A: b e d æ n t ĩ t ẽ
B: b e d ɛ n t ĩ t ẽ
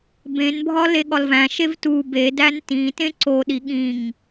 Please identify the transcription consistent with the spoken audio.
A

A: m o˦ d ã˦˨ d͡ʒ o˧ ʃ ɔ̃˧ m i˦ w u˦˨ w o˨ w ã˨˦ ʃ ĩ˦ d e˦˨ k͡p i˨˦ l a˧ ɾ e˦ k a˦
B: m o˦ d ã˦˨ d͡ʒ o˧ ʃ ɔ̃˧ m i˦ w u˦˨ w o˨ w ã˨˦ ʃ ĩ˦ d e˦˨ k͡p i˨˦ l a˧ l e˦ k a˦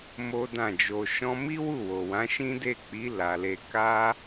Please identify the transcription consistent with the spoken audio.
B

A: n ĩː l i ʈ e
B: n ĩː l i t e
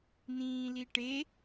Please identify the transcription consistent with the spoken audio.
A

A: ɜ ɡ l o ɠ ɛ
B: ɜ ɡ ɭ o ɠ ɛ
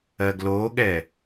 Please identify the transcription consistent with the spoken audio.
A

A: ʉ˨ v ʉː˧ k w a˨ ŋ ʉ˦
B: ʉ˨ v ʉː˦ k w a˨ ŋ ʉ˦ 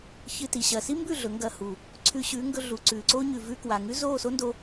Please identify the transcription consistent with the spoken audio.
A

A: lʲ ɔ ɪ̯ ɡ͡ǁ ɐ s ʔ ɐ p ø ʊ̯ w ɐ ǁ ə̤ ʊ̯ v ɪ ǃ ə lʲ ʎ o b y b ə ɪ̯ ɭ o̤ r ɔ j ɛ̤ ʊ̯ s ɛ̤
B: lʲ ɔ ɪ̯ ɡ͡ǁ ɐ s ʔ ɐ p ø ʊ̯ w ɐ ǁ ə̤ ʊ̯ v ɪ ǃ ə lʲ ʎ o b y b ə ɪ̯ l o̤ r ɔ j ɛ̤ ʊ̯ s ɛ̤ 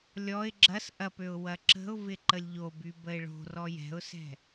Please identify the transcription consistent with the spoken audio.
A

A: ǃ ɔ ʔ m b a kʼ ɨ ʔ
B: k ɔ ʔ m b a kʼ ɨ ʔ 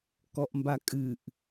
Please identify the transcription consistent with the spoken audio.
B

